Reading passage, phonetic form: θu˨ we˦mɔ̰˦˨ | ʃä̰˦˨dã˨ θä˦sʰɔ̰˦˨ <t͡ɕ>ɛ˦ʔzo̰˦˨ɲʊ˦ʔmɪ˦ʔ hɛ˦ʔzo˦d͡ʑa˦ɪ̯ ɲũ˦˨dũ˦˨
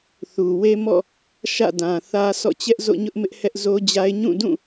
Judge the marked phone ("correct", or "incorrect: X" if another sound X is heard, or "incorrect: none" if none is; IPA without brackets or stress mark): correct